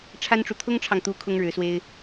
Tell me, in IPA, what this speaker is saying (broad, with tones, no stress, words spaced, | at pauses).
ʈ͡ʂʰa˥nʈ͡ʂu˨ t̪ʰʊ˥ŋʈ͡ʂʰɑ˨ŋt̪u˧˥ kʰʊ˥ŋɻɻ̩˧˥swe˥ɪ̯